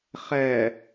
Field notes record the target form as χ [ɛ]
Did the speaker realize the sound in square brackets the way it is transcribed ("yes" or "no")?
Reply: yes